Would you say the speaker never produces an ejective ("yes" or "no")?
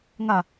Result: yes